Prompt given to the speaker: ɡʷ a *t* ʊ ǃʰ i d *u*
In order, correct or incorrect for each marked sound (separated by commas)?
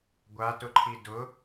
correct, incorrect